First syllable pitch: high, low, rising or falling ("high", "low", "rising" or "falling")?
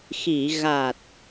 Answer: low